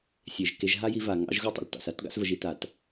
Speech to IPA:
sʲ e˨ ʒ k e˧ ʒ ɦ a˦ j i˧ v a˨ ŋ ɑ̰˧ ʒ ɣ u˦ tˤ ə̰˨ l t ɑ̰˨ s a˧ t ɡ ɑ̰˧ s v ə˨ ʒ i˧ t a˨ t

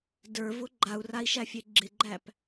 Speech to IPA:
d ə˞ v ʊ ɡ͡ǃ a u̯ r a i̯ ʃ æ fʲ e ɡ͡ǁ ɪ ɡ͡ǃ æ p

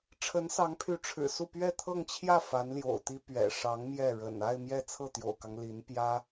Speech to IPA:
ʈ͡ʂʰ ə˧˥ n s ɑ˧˥ ŋ pʰ y˧˥ ʈ͡ʂʰ ɻ̩˨˩ s u˥˧ p ɥ ɛ˥˧ t̪ʰ ɤ˥˧ ŋ t͡ɕʰ j ä˥˩ f a˧˥ n l j o̰˨˩ ʊ̯ t̪ i˥ p ɥ ɛ̰˨˩ ʂ ɑ˧˥ ŋ m j ɛ˥˩ ɻ ə̰˨˩ n a˥˧ ɪ̯ m j ɛ˥˧ t͡sʰ ɤ˥˩ t̪ j o̰˨˩ ʊ̯ k ɑ˦ ŋ l i˧˥ n p j ä˥

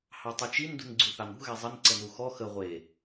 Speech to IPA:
h ɑ tˤ y t͡ʃ i n d ṳ n ɡ͡ǀ ʉ θ ɑ n ṳ ɣ ɛ zˤ ə n ǀ ə n u x ɔ x ə ʁʷ e

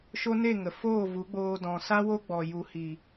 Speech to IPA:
ʃ o˦ n e˦˨ ŋ ə˨ f oː˦˨ v u˨˦ ɡ͡b oː˧ d ɔ̃˨ s a˦ w o˦ ɡ͡b ɔ˨ j u˨ h i˨

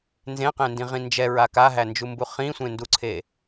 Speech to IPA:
n z ẽ q ẽ n d ĩ ʁ ĩ n d͡ʒ ɛ ɹ a k a ɦ æ n d͡ʒ u m b u χ ĩ sʷ ẽ n d u ǀʰ e

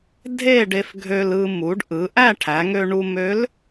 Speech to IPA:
dʱ e˥˧ ɖ e˧ f ɡʱ ø˧ l ɯ˧ m u˩˧ ɖ ʔ ɯ˩˧ ʔ æ˥˧ ʈʰ æ˩˧ ŋ ø˧ ɳ u˧ m ø˧˥ l

